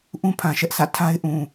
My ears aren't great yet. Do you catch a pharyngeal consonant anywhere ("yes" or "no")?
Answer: no